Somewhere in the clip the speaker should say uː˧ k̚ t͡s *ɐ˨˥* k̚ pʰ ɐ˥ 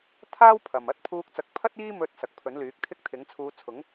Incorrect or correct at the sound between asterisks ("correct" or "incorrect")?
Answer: correct